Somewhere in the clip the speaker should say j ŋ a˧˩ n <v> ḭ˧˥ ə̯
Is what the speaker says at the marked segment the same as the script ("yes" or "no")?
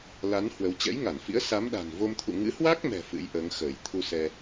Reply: no